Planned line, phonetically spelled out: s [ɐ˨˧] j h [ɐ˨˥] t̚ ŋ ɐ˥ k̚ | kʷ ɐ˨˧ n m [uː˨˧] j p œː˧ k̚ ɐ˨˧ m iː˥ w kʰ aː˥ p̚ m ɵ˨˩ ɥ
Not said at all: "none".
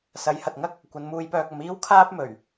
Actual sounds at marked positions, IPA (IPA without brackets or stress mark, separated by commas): ɐ˨˥, ɐ˨, uː˧